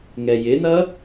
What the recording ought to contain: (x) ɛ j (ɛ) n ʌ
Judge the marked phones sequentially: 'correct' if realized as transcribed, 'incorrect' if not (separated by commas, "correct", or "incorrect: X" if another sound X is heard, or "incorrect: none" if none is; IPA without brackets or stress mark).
incorrect: ŋ, incorrect: ɪ